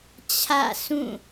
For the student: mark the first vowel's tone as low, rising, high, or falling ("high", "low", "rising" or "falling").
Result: falling